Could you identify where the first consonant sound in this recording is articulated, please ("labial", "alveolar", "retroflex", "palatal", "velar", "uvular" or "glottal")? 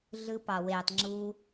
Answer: alveolar